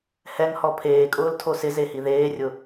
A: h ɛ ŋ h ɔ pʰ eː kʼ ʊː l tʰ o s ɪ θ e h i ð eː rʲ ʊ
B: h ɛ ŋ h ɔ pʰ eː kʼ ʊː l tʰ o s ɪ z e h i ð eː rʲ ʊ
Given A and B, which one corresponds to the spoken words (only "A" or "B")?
B